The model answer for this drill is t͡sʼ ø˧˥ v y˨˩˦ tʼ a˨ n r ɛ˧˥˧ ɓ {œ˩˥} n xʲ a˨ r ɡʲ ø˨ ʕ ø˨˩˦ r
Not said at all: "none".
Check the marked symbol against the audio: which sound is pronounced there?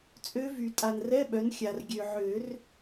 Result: œ˩˥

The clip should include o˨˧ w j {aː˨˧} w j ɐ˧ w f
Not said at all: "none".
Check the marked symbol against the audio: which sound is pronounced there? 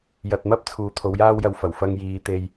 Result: aː˥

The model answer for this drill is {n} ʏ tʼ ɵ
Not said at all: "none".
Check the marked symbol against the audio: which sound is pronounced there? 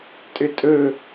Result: tʼ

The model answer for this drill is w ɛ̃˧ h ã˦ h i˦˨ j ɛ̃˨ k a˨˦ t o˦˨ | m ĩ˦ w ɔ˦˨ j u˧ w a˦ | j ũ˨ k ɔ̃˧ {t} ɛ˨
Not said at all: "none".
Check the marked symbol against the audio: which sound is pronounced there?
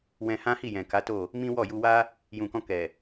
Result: k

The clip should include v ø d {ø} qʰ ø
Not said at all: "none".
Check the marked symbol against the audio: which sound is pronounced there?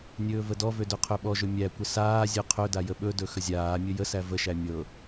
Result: ø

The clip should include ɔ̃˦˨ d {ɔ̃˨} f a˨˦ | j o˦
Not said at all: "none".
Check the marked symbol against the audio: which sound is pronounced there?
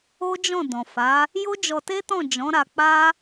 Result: ɔ̃˨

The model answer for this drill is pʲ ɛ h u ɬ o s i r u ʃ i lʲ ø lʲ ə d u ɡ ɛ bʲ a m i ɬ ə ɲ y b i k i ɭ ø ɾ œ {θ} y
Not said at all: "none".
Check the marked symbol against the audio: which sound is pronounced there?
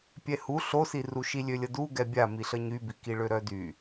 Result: d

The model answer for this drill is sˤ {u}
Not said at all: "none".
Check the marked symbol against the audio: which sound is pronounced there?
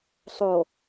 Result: o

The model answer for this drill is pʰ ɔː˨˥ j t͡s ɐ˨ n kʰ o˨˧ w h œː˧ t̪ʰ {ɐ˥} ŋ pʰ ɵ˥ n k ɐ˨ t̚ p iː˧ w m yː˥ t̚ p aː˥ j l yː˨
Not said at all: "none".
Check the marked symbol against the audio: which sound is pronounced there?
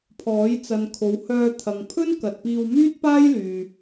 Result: ɐ˨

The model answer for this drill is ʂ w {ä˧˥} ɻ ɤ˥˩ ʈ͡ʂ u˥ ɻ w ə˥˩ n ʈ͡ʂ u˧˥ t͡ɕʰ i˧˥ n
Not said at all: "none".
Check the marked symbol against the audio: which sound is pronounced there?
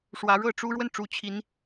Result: ä˧˥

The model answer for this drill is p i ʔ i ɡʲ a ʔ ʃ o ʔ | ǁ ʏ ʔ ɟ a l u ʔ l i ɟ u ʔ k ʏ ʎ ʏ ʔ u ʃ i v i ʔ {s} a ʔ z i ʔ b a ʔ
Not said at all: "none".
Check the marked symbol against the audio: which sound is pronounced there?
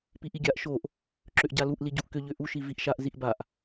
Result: ʃ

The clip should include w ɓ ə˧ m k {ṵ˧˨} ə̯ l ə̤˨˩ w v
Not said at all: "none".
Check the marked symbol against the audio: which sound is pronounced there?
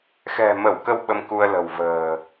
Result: u˧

